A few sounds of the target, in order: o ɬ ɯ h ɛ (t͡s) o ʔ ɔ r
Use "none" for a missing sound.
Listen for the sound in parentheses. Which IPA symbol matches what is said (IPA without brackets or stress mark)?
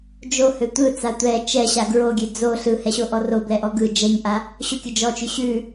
ɕ